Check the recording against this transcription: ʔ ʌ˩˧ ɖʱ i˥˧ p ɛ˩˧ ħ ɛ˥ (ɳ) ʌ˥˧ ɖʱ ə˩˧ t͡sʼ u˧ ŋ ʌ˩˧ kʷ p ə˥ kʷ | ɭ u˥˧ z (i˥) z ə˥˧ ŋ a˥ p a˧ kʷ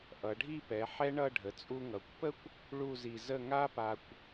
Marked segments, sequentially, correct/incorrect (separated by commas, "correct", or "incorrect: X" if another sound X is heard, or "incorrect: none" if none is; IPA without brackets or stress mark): correct, incorrect: i˧